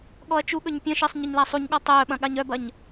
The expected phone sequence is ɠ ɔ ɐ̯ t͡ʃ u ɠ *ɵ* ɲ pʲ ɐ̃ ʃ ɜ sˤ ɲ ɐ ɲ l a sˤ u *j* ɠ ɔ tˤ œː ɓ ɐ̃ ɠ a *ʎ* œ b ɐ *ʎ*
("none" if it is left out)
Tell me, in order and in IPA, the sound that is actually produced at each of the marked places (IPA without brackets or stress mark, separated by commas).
ɵ, ɲ, ɲ, ɲ